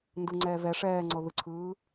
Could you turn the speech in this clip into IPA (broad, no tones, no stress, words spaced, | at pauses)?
ndɯŋ͡ǀɛː vɛ ʂɛːŋ͡ǀɤ ðɯǀʰɯː